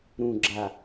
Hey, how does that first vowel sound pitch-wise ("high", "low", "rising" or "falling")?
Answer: low